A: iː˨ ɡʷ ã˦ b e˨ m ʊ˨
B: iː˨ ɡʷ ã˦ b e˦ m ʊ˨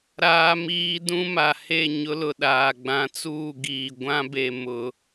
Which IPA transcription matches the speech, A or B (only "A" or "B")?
A